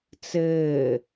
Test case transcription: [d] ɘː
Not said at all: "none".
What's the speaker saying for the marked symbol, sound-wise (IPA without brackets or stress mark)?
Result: t͡s